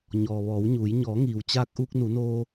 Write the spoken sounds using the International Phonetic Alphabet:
ɲɔː˩ʋɔː˩˧wɲuː˩˧j ɲɔː˩˧ŋiː˩wt͡ɕaː˧k̚ ʔuː˧k̚nu˩˧noː˧

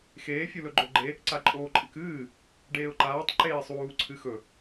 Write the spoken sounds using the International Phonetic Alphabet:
xeː fʲulɵɡ͡ǃoɡ͡ǃe | ǀaǃʼoːǃʼɨkɨː | ɖeːʊ̯ǃaːtˤ ǃeːsˤuː ǀʰɨxɵ

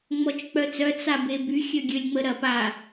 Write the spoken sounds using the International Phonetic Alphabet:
ŋ͡mɔt͡ʃk͡pœt͡sœ t͡sabeby xʲøɡʲølʲŋ͡məɾɐp a

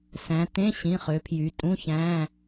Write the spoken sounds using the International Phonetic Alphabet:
sæ̃˩˧tẽ˧˥˧ɕĩ˩˧˩χø˩˧ pʰjy˩˧tʼũ˧˥˧çæ̃˧˥˧

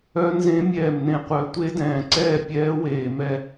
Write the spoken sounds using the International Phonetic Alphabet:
œ˦˥nzẽ˦˥ mʲɛː˥˨mnẽ˥˨qʷœ˦˥ tʷe˦˥dɛ̃ː˨ǀɛː˥˨ pʲɛː˦˥weː˨mɛ˥˨

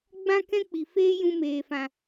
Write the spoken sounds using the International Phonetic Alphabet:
ɡ͡bã˦kɛ̃˦ k͡pi˨ feː˦jũ˧meː˨ fã˨

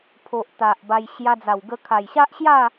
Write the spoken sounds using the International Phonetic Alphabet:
pʰo˨ʔ t̪a˨ʔba˧j ɕja˧d͡za˨˩wɡə˧ kʰa˨˩jɕa˦ʔɕja˥˧

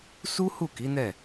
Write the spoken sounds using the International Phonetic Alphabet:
su˦ hu˦˨ki˨˦nɛ˦˨

